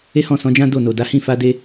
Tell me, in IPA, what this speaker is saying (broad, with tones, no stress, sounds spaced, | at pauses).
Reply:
e˦ h ɔ̃˦˨ s ɔ̃˨˦ d͡ʒ ã˦ d o˦˨ n o˨ d a˨˦ h ĩ˦˨ f a˧ d e˧